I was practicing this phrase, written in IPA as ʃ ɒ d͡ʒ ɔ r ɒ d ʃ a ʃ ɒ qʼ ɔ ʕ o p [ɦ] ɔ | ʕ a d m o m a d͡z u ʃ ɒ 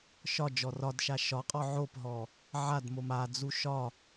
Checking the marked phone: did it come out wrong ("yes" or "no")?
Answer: no